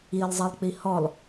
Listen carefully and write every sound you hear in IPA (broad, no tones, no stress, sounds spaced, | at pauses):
i lˠ zˤ e lˠ k͡p i h ɔ lˠ